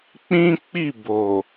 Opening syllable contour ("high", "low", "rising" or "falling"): high